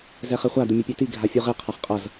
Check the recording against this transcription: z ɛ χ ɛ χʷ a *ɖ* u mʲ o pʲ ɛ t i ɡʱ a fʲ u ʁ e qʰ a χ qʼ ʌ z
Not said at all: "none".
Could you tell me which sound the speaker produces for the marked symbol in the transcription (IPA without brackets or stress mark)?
d